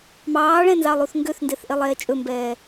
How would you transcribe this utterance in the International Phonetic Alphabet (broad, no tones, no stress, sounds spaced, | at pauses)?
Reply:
m ɑː ɭ ɛ̃ n z ɑ lˠ u θ ŋ ɡ ø θ n d e θ ʔ e lˠ ɛː t͡ʃʼ ɵ m b ɛː